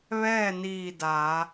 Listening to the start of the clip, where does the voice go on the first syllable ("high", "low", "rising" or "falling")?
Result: falling